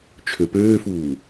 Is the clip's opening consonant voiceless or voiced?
voiceless